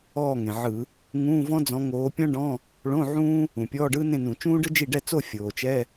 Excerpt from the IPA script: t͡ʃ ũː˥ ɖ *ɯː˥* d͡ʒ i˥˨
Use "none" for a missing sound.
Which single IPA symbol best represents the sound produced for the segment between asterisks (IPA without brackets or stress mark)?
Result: ɯ˥